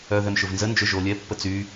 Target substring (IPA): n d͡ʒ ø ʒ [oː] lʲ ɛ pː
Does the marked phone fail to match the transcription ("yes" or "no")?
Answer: no